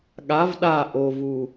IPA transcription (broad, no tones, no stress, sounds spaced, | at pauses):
ɠ a v ɗ a ʔ o v u